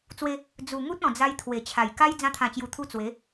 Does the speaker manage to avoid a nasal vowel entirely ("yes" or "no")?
no